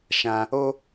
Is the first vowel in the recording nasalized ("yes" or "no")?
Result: yes